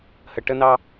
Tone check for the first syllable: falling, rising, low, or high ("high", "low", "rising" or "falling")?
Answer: low